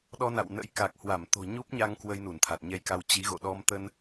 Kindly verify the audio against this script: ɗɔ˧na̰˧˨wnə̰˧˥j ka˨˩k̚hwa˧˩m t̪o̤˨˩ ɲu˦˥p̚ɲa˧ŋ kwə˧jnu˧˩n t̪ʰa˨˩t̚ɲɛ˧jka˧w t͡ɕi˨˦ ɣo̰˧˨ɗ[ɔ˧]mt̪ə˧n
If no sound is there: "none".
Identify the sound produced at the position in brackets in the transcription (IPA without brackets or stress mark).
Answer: ɔ˧